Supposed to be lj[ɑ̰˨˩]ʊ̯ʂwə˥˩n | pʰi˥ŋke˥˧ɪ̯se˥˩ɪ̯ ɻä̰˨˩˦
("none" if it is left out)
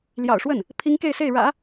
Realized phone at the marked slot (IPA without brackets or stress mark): ɑ̰˨˩